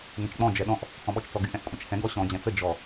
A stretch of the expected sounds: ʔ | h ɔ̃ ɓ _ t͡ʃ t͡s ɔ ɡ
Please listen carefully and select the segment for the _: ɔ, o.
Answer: ɔ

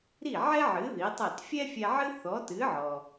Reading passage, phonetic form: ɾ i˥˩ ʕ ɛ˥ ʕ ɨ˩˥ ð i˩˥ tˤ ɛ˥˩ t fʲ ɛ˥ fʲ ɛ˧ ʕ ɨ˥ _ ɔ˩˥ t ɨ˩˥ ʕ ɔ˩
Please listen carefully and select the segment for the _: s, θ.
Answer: θ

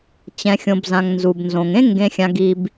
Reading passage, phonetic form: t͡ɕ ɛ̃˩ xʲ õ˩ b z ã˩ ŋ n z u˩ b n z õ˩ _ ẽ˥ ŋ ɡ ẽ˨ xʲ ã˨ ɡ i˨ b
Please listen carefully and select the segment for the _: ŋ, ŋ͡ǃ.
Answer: ŋ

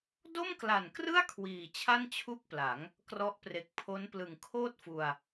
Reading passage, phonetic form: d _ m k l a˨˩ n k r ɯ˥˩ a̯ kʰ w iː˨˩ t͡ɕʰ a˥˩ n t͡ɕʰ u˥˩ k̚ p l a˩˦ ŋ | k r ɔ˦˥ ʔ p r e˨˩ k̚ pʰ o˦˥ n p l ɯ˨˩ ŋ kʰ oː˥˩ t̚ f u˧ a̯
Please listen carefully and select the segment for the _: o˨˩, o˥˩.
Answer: o˥˩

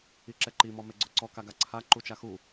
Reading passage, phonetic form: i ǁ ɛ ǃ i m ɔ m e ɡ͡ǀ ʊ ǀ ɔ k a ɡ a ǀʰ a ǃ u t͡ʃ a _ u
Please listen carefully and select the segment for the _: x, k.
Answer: x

